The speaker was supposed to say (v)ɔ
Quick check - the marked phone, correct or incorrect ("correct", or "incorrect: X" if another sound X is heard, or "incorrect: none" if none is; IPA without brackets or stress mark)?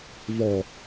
correct